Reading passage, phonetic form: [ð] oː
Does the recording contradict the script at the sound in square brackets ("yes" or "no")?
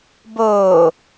yes